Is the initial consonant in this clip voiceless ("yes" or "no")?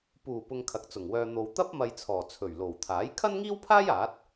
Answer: yes